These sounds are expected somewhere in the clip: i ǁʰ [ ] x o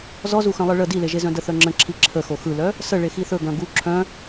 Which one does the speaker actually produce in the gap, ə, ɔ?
ə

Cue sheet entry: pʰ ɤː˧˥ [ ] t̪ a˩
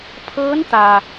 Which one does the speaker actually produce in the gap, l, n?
n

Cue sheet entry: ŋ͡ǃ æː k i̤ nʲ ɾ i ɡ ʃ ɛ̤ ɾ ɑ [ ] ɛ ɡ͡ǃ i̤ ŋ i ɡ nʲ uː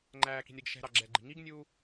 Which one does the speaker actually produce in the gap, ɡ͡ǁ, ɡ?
ɡ͡ǁ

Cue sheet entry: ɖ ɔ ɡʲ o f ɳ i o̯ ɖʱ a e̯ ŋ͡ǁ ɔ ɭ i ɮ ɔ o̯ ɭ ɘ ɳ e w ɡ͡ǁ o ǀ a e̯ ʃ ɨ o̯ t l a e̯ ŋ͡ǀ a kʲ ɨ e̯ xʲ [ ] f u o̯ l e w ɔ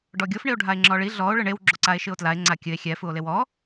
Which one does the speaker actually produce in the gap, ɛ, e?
ɛ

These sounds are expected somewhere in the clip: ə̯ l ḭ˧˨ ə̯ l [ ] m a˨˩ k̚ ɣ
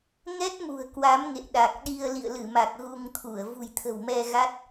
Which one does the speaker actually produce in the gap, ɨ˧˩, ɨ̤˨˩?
ɨ˧˩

